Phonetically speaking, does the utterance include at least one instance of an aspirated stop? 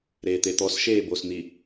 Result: no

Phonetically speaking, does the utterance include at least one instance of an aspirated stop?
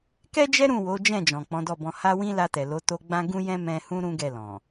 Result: no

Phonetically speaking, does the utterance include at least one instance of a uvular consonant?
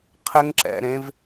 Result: yes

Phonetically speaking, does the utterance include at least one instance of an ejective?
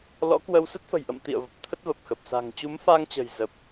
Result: no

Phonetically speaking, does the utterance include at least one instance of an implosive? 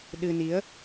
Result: yes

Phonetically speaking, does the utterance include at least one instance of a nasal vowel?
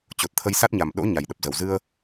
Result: no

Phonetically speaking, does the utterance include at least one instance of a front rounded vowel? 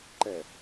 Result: no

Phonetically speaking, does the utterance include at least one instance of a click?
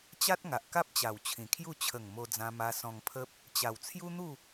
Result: no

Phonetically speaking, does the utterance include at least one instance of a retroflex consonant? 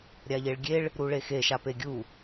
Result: yes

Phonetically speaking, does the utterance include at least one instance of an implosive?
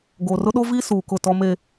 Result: yes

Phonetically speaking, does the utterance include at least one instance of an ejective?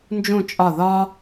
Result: yes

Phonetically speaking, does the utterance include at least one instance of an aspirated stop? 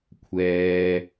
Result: yes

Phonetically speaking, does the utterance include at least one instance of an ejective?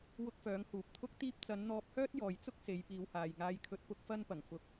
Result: no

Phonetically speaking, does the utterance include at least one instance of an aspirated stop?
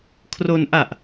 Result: yes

